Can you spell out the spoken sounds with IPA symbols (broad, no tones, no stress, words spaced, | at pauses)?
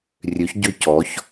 rʲøçɟø cɔç